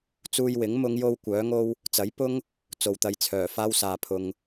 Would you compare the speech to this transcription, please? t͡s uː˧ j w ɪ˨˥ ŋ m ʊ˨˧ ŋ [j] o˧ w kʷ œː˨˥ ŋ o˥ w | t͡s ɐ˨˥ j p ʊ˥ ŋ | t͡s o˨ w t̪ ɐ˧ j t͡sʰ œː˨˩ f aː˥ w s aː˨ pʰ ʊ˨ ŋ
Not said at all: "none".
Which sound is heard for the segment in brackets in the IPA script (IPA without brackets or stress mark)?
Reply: j